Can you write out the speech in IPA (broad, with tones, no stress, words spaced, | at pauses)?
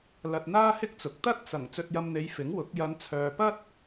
lɐ˧t̚n̪aː˥hɪ˥k̚t͡sʊ˨k̚ t̪ɐ˥t̚t͡sɐ˨˩ŋ t͡sɵ˧t̚jɐ˧mn̪e˨˧j fɪ˨˥ŋwʊ˨˥k̚ jɐ˨˧nt͡sʰœː˨pɐ˥t̚